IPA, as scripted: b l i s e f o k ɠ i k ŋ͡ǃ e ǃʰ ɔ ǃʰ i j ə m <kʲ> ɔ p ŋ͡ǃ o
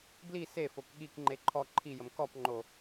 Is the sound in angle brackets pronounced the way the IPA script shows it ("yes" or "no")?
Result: no